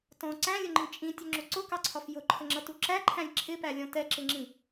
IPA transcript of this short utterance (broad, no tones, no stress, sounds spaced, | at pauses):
t ɔ̃ ǀ æ̃ lʲ ʊ ŋ͡ǃ ĩ t͡ʃʼ ĩ tʲ ʊ ŋ͡ǁ ʊ ǀ ʊ k ɑ ǀʰ ɒ f j ʊ ǃʰ ə ŋ͡ǁ ʌ t u ǁ æ ǃʰ æ̃ lʲ ǁʰ ɪ p æ lʲ ɔ̃ t ɛ ǁ ɪ ŋ͡ǁ ĩ